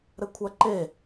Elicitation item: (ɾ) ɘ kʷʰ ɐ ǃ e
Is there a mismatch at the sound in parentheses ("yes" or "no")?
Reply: no